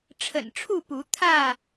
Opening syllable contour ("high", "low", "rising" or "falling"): low